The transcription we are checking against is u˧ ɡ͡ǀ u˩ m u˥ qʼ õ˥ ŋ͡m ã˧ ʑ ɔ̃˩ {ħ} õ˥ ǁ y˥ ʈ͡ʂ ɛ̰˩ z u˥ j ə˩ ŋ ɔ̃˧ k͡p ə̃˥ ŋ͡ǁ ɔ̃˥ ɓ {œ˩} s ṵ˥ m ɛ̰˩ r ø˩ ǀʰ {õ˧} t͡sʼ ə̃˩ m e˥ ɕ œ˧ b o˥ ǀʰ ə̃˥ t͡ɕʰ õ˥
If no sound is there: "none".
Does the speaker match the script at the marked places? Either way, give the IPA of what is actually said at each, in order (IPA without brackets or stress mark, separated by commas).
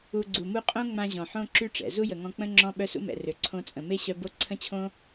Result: ħ, œ˥, õ˧